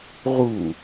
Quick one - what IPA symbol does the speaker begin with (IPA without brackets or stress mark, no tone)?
ʁ